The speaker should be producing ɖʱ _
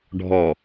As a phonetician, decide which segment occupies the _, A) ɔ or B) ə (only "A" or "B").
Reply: A